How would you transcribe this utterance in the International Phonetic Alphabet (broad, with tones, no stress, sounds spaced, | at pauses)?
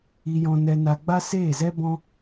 i˧ j ɔ̃˧ n ɛ˧ n a˧ ɡ͡b a˦ s eː˦˨ z ɛ˦ b ɔ̃˦